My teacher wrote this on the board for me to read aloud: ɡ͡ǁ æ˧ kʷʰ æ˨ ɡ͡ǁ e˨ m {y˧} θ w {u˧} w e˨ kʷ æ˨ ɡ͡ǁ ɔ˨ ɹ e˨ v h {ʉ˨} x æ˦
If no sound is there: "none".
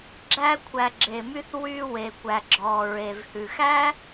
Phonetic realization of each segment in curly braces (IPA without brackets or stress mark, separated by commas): y˧, y˧, ʉ˨